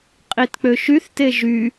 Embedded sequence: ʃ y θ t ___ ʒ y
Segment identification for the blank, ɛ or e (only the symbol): e